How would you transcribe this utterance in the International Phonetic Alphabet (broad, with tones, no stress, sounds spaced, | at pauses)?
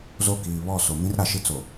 z o˦˨ k iː˨ β ɔ˦˨ s o˨ m ĩ˦ r ɾ a˨ ʃ i˦ t͡s o˨